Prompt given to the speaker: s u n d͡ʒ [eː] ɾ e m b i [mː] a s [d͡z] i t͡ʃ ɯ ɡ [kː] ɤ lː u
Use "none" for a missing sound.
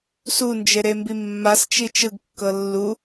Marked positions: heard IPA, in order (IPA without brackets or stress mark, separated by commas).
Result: e, mː, t͡ʃ, kː